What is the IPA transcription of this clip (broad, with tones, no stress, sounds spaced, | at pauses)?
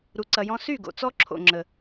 ɾ u˨ ǀ ɐ˨ j ɔ̃˧ s y˦˨ ɡ o̰˨ t͡s ɔ˦ ǁʰ o̰˨ ŋ͡ǁ ə˨